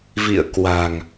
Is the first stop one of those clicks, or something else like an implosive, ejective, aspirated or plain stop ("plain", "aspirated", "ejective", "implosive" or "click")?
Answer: plain